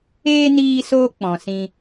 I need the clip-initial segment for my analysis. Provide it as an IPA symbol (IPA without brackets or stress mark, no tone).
eː